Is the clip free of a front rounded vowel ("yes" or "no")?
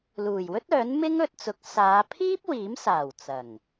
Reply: no